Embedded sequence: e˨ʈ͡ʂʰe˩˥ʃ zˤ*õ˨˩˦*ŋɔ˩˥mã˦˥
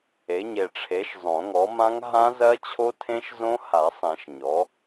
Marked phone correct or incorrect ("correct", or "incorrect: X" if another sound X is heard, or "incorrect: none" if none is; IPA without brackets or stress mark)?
correct